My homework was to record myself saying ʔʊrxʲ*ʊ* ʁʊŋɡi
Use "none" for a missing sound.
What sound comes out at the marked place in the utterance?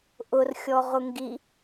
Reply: ɔ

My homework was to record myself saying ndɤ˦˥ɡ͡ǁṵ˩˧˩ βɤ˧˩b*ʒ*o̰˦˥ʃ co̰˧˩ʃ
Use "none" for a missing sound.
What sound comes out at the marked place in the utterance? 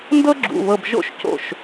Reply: ʒ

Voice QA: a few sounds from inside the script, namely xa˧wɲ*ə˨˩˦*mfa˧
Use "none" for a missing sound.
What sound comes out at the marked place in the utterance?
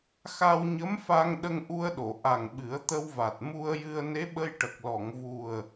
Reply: ə˧˥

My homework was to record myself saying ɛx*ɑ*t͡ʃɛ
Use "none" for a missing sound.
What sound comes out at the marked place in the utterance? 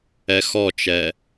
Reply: ɔ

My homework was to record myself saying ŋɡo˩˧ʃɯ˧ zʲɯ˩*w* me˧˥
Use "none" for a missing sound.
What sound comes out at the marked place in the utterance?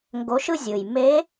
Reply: j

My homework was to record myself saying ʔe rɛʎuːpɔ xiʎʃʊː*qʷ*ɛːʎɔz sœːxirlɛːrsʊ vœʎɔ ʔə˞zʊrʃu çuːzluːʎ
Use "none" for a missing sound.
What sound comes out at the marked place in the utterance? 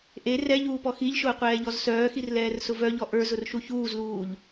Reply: qʷ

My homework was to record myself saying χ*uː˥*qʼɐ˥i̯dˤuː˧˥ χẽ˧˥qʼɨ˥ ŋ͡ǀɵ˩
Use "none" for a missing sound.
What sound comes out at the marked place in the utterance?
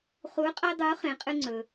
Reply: uː˧˥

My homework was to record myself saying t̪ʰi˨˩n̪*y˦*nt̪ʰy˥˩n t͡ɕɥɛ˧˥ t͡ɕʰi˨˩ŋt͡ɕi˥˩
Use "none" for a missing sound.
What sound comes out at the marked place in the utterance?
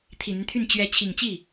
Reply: y˦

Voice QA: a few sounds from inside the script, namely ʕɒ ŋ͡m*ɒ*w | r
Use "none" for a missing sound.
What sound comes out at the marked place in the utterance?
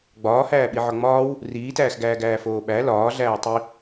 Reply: ɒː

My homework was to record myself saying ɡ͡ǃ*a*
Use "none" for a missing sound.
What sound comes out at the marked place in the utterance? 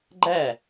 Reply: æ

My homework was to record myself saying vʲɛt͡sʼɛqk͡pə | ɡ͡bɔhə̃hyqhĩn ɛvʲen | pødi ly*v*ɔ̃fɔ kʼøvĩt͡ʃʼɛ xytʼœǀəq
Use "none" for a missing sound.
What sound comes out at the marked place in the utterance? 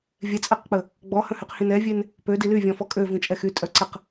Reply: vʲ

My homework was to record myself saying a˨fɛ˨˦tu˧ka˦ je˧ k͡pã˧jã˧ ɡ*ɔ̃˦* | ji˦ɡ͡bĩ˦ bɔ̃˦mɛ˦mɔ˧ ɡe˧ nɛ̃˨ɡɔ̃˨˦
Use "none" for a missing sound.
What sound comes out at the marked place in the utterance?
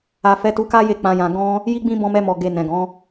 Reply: ɔ̃˦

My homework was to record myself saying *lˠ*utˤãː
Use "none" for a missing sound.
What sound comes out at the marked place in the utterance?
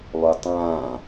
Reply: lˠ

